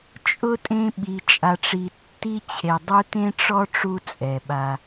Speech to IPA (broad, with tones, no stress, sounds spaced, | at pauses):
t͡ʃʼ ʊ˦ tʼ ẽ˥ ɓ i˨ t͡ʃʼ a˨ ʈ͡ʂ i˨ tː i˥ t͡ɕʰ e˨ dˤ u˦ t ẽ˥ ʈ͡ʂ ɔ˥ ʈ͡ʂ u˦ t͡sʼ ɛ˩ ɓ a˨